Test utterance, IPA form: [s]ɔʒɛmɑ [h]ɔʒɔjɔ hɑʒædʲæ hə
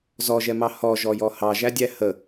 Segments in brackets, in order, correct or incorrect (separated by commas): incorrect, correct